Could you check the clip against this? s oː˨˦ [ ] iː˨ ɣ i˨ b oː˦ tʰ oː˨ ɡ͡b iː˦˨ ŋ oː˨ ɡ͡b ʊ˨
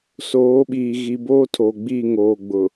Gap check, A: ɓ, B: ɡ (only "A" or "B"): A